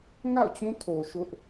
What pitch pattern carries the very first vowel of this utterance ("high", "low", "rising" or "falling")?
falling